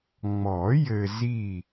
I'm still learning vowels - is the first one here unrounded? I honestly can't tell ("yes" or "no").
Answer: no